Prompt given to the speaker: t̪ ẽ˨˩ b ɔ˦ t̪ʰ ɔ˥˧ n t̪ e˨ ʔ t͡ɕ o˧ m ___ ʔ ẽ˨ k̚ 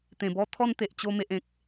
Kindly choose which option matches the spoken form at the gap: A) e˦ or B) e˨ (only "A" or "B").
B